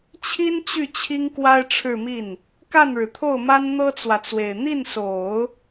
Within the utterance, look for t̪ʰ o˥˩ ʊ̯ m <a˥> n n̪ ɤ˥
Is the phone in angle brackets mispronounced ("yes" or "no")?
no